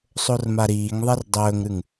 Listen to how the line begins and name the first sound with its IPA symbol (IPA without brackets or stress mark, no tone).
sˤ